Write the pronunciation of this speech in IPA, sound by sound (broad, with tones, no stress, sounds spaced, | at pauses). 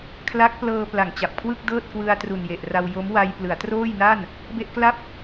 kʰ l a˦˥ k̚ p l ɤː˧ p l a˨˩ ŋ t͡ɕ a˨˩ p̚ kʰ w ɯ˥˩ k̚ d ɤː˥˩ t̚ k w ɯ˧ a̯ t r u˨˩ n j e˨˩ ʔ r a˧ w j o˦˥ m w a˧ j p l ɯ˩˦ a̯ t r oː˥˩ j n a˥˩ n | b e˥˩ ʔ k l a˥˩ p̚